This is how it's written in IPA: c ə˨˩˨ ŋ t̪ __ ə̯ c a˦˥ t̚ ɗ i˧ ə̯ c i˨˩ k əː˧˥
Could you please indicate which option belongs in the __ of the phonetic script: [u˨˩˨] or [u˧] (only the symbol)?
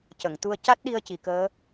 u˧